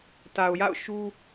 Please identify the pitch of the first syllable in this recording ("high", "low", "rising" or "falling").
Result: low